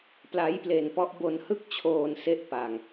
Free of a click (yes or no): yes